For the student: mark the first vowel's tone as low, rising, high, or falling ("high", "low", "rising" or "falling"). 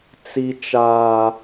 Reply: low